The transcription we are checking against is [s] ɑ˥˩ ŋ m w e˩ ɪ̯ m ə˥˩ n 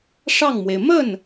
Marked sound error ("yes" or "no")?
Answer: yes